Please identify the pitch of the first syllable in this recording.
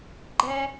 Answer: high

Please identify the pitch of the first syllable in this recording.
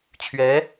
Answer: rising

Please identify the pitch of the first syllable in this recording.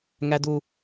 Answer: high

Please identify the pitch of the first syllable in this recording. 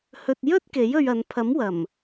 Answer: low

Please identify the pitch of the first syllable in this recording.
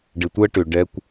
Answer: low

